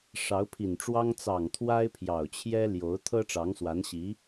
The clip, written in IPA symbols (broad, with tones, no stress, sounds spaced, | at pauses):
ʂ ɑ˧˥ ʊ̯ pʰ i˨˩ n ʈ͡ʂ w ɑ˥ ŋ t͡s ɑ˨˩ ŋ t̪ʰ w a˥ ɪ̯ pʰ j ɑ˨˩ ʊ̯ t͡ɕʰ j ɛ˥ l j o˧˥ ʊ̯ t̪ʰ ɤ˥ ʈ͡ʂ ɑ˧˥ ŋ s w a˧˥ n ɕ i˧˥